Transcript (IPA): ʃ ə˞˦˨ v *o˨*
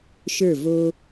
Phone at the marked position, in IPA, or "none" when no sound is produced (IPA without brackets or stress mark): o˦